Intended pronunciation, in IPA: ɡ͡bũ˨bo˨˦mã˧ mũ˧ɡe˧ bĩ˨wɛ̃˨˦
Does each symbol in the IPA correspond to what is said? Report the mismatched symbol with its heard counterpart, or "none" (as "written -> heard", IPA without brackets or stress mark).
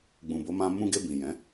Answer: w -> j